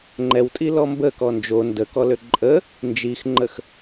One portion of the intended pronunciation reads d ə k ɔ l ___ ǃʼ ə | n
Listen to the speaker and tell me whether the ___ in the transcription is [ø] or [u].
ø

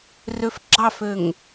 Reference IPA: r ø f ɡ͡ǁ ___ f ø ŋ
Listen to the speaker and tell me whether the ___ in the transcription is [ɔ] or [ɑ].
ɑ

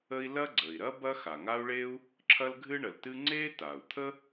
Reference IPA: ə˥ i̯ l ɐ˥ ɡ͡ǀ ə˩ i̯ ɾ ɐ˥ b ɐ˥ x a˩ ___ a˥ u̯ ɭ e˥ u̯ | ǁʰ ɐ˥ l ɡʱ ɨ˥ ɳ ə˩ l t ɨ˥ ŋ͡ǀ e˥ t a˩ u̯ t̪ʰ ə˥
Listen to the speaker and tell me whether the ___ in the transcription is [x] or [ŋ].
ŋ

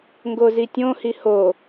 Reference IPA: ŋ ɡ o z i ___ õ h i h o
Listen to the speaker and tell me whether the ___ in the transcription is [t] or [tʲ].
tʲ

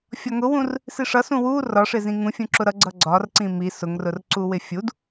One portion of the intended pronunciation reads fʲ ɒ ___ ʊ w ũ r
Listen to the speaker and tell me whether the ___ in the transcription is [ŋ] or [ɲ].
ŋ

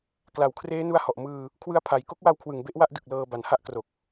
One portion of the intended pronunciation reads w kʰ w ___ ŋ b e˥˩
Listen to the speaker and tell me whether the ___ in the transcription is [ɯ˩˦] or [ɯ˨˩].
ɯ˨˩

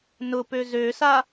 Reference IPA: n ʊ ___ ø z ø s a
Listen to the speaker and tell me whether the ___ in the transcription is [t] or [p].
p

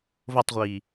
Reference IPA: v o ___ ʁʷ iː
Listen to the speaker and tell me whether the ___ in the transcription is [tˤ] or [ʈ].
tˤ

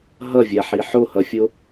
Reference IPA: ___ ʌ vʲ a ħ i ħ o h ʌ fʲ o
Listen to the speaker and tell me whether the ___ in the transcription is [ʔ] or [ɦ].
ɦ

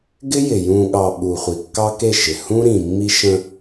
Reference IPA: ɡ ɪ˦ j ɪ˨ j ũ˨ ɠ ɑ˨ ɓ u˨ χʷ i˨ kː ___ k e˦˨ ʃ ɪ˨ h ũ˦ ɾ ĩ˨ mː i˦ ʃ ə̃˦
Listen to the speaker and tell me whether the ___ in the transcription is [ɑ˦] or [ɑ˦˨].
ɑ˦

